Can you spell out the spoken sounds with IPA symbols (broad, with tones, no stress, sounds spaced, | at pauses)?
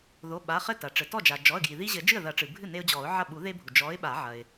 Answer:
ð o˩˧˩ ɓ a˩˧˩ χ ɘ˥˩ t ɐ˩ ʈ͡ʂ ɘ˩ t ɔ˥˩ d͡ʒ a˩ d͡ʒ ɔ˩˧˩ ə̯ ɡ j i˩ ð i˦ ʑ ɘ˨˩˦ d͡ʒ ɨ˥˩ ə̯ ð ɐ˨˩˦ ʈ͡ʂ ɨ˩ bʱ ɨ˥˩ n e˦ ʊ̯ d͡ʑ ɔ˨˩˦ ʊ̯ ʕ ɐ˥˩ ɓ u˨˩˦ ð e˦ bʱ u˩ d͡ʒ ɔ˨˥ ɪ̯ ɓ a˨˩˦ ʕ ɐ˩ ɪ̯